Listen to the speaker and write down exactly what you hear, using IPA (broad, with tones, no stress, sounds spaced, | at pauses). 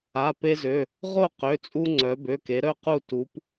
a˩˧˩ p e˧ z ø˩˧˩ | ʁ o˥˨ q ø˩˧˩ t͡sʼ u˧ ŋ͡ǀ œ˩˧ b ø˩˧˩ k e˩˧ ɾ œ˥˨ q u˥˨ t u˩˧ p